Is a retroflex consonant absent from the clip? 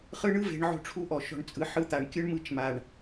no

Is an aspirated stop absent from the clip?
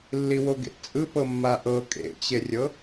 yes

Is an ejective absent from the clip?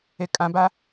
no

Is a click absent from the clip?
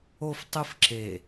no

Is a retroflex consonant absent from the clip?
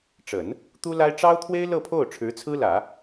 no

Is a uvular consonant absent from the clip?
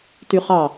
no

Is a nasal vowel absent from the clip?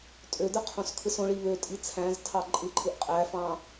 no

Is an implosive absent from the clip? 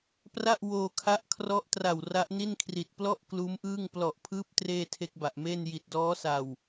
yes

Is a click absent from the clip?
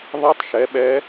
yes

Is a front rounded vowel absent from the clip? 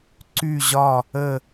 no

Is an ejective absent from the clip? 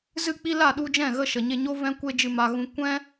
yes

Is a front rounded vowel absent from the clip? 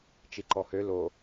no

